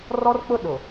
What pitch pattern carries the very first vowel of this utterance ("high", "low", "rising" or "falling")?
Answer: high